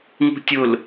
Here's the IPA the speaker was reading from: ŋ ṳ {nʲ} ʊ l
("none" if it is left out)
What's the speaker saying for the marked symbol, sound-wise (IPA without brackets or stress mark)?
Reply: tʲ